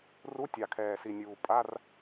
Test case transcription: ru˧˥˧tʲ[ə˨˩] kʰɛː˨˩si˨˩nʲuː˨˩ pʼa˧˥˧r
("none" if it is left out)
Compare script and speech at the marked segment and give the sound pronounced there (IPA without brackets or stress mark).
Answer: ɑ˨˩